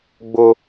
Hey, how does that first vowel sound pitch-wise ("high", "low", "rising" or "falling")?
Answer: high